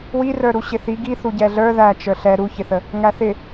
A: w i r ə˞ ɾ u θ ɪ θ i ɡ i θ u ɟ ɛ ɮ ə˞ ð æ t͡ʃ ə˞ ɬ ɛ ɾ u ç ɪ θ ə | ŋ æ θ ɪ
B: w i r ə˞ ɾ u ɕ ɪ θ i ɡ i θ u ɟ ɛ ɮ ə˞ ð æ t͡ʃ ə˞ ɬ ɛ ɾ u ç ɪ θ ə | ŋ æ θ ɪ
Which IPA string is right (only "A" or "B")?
B